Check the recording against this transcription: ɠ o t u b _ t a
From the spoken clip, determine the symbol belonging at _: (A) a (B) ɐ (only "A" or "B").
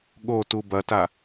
B